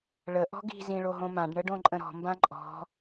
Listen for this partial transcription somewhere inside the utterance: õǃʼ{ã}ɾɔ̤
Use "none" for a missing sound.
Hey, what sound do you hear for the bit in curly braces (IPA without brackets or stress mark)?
ə̃